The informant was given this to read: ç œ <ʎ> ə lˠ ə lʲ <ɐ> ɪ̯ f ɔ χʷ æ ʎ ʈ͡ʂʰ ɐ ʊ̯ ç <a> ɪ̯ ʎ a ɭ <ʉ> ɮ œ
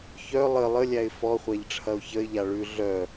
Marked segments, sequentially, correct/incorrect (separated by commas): incorrect, incorrect, incorrect, correct